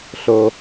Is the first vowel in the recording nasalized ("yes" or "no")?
no